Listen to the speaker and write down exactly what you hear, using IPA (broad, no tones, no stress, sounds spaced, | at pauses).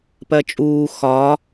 p ɜ t͡ʃʼ uː x ɒ